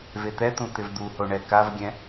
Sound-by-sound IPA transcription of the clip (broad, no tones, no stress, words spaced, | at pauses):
vet̪ɛt̪ũ t̪ɪvd̪uho ɳɛkavɡʲɛ̃